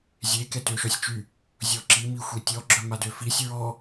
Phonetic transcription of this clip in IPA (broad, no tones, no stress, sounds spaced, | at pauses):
zʲ e k ɛ t ø ʃ ɔ sʲ t͡ʃ y | zʲ ɔ ǁ i m i xʷ i tʲ ɔ ɡ͡ǁ œ m a d ø f i sʲ ɹ ɔ